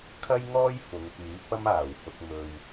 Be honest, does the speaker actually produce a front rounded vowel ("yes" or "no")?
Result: yes